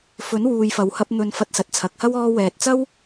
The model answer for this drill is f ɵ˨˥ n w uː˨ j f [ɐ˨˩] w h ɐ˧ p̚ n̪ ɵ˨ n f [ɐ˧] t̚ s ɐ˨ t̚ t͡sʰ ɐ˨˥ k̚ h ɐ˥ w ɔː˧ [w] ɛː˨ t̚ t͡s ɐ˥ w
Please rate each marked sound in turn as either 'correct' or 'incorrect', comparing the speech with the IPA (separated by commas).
incorrect, correct, correct